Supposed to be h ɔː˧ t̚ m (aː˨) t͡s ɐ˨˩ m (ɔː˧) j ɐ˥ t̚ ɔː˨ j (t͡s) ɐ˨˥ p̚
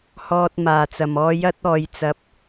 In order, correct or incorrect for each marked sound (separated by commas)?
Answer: incorrect, correct, correct